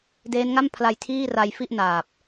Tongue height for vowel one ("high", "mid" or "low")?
mid